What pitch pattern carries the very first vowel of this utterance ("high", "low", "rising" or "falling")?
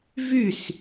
falling